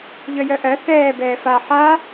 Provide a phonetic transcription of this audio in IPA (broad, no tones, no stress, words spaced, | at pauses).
ʎœjœʔɜ θɛː bɛːfa ħa